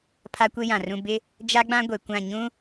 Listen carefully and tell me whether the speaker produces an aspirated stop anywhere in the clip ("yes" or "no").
yes